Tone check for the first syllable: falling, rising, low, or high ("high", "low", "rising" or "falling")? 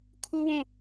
high